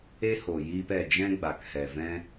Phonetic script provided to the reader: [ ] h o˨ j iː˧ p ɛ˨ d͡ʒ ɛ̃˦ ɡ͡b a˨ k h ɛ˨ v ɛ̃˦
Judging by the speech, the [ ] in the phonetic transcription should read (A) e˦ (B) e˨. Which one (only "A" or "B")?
A